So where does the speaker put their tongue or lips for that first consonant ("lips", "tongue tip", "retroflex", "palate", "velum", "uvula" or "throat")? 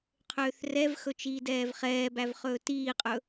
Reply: uvula